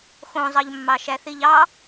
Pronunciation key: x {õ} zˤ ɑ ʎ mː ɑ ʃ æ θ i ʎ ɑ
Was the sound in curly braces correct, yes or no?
yes